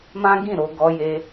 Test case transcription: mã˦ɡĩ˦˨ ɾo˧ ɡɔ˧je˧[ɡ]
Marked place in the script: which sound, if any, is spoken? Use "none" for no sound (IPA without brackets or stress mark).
none